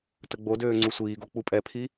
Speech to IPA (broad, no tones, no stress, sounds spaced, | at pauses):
t ə ɡ͡b o d øː ŋ͡ǀ u sʷ iː ɡ o k͡p u pʼ ɛ pʰ i